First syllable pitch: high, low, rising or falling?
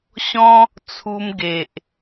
high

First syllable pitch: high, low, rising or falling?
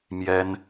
high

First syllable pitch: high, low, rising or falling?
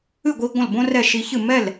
falling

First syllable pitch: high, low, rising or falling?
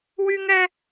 high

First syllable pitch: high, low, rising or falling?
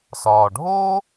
low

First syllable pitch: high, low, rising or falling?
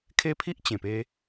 high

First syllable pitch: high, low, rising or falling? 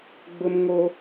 high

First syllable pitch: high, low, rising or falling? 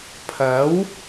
rising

